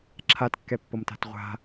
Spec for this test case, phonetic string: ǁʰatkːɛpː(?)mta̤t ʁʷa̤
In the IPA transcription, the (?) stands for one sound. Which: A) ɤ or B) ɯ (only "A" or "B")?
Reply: A